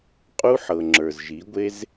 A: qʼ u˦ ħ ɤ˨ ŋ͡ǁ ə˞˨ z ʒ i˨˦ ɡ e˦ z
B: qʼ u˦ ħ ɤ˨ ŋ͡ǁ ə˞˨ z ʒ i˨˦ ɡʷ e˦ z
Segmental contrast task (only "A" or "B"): B